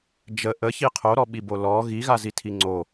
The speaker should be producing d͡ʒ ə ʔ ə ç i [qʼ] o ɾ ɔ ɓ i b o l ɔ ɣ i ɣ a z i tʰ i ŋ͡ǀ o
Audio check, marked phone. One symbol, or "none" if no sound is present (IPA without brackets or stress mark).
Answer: qʰ